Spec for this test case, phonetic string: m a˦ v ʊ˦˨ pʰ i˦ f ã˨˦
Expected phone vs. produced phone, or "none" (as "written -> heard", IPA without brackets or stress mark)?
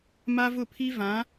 f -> v